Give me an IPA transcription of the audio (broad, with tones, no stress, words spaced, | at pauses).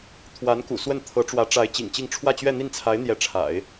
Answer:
t̪ʰwa˧˥nkṵ˨˩swə˥˩nt̪ʰɤ˧˥ ʈ͡ʂwä˧˥ʈ͡ʂa˧˥ɪ̯ t͡ɕḭ˨˩ŋt͡ɕi˥˧ŋ ʈ͡ʂʰwä˥˧t͡ɕɥɛ˥˧n̪i˥˩nt͡sʰa˧˥ɪ̯ n̪jɛ˧˥ʈ͡ʂʰa̰˨˩˦ɪ̯